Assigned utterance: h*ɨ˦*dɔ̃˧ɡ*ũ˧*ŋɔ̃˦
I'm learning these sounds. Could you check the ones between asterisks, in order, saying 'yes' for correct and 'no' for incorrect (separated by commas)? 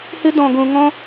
yes, yes